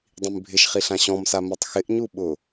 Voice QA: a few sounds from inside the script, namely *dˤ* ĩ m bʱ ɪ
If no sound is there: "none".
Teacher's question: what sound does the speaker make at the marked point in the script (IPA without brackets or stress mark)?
dˤ